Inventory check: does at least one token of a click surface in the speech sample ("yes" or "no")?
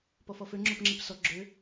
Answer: yes